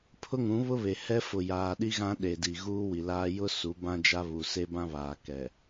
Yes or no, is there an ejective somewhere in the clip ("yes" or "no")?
no